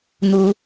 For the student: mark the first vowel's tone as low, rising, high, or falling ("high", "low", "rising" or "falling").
high